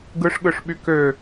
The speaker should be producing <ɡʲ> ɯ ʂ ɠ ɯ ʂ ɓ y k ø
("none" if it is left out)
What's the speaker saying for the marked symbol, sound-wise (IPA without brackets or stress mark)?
ɡ